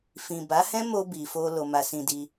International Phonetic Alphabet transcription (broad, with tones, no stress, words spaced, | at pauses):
fĩ˨ ba˨˦hɛ̃˦ mo˧ bi˨fo˧ lo˧ma˧sĩ˧di˧